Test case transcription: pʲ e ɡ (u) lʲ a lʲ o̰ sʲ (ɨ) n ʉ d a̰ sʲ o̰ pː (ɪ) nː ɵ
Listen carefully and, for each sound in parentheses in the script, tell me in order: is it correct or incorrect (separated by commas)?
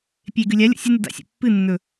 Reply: incorrect, correct, incorrect